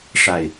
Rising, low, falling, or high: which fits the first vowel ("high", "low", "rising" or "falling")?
low